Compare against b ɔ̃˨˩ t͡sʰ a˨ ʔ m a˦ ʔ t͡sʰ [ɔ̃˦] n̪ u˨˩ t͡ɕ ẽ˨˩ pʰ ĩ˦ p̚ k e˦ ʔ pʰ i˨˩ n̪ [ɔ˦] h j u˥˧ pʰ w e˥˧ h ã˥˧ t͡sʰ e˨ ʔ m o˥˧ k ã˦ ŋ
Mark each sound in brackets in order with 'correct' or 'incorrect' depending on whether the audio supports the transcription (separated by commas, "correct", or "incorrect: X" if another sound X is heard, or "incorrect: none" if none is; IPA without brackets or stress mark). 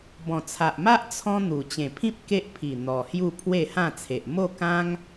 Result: correct, incorrect: ɔ˨˩